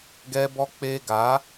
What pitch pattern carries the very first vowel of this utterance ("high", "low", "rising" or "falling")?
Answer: high